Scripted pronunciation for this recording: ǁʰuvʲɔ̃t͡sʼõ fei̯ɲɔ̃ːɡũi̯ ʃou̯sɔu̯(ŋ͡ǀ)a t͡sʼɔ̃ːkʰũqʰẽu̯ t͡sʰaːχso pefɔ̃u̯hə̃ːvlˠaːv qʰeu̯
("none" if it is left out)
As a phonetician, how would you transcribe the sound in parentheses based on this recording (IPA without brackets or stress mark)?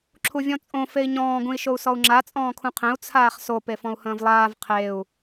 ŋ͡ǁ